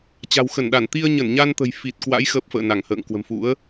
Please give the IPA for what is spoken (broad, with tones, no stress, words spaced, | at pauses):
t͡ɕa̤˨˩wxə˧˩nɗa˧˩n t̪i˧ə̯ɲə˧˩nɲa˧nt̪ə̤˨˩j fi˨˩t̚kwa̰˧˥j xəː˦˥p̚fə̰ː˧˨na˧˩ŋ hə̰ː˧˨ŋ kwə̤˨˩mfṵ˧˥ə̯